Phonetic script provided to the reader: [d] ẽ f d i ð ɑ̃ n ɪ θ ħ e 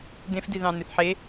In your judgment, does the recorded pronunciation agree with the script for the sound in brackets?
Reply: yes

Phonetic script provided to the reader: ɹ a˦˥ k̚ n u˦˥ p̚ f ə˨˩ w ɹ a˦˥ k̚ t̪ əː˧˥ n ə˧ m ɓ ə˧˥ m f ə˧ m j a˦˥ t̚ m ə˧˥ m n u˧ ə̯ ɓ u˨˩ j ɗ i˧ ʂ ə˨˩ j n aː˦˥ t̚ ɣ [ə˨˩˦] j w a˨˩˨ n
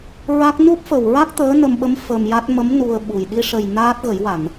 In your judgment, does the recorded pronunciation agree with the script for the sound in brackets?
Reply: yes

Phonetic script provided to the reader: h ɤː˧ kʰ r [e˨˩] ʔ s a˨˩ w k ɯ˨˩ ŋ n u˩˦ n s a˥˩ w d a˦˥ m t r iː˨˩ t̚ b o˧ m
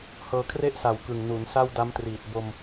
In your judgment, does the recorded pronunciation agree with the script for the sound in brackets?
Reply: no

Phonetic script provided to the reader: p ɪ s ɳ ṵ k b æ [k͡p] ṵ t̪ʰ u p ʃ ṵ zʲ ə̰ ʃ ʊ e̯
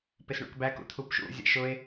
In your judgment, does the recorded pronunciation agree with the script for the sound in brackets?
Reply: no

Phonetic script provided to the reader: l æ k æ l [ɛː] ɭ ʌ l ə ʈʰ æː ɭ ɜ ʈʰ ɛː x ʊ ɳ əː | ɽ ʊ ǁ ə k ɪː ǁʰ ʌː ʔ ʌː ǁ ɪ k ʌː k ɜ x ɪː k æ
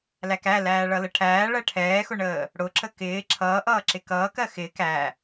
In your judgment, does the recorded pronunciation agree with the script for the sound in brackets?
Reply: no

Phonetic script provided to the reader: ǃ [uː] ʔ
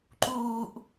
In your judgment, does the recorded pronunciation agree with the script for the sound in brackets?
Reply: yes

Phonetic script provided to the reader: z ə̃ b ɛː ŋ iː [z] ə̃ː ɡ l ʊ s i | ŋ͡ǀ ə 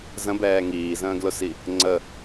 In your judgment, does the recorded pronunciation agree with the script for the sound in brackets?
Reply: yes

